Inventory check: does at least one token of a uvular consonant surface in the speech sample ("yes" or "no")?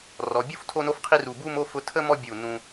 yes